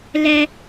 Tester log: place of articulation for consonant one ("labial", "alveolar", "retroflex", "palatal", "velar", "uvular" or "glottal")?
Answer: alveolar